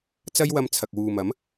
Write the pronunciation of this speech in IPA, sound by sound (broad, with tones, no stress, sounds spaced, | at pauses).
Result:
t͡s ɐ˥ j w ɐ˧ m t͡sʰ ɐ˨ k̚ w uː˨ m ɐ˨˥ m